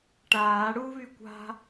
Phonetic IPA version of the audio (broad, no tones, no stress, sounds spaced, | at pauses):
ʈ aː ɽ u β y kʷ a̤